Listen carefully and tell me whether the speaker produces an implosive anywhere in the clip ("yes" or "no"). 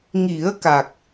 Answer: no